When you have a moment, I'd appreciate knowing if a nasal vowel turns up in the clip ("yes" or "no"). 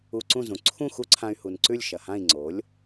yes